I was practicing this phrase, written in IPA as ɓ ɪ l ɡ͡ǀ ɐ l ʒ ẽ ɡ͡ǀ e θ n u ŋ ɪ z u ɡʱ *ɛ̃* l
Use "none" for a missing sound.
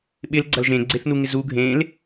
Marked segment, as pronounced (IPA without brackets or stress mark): ẽ